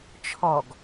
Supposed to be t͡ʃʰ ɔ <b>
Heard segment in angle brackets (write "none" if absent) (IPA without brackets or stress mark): ɡ